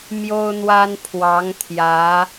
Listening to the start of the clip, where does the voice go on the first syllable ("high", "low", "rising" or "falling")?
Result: high